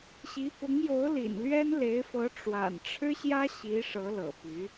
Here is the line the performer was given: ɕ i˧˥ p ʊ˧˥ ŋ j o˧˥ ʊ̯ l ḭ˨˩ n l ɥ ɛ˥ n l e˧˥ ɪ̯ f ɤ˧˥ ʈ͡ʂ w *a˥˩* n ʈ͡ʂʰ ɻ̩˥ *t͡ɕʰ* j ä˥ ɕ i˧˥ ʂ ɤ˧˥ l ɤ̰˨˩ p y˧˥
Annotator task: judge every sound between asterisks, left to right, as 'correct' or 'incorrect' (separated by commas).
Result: incorrect, incorrect